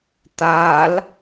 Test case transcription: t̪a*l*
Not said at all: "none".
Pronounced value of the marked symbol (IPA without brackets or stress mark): l